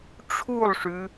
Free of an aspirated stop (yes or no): no